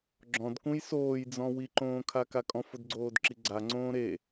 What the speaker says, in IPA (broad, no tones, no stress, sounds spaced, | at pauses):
ɡ͡ǁ ɔ̃ d k ũ j s oː j d͡z ɔ̃ w i ǃ õː kʰ a k a kʼ ɔ̃ f ʊ d ɡ͡ǀ oː d ǁ i ɡ͡ǀ a ŋ͡ǀ õː ɾ e